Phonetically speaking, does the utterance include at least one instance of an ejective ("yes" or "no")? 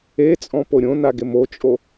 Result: yes